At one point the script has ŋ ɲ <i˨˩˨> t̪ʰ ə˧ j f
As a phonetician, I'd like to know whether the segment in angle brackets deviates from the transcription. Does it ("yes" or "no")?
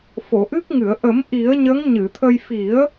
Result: yes